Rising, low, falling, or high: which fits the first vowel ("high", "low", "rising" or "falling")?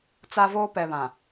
high